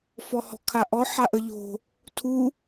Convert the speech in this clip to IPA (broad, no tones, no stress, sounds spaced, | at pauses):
f ɔ h ɔ̤ kʰ a ʔ ɔ ħ a ʔ ə ʎ o̤ | tʰ u